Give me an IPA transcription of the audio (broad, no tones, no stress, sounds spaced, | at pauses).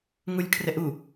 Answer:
ŋ u lʲ kʰ r ɛ ʔ u